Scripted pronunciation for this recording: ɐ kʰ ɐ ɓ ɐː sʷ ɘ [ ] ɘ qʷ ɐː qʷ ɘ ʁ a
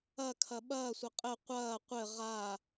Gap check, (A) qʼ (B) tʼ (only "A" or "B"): A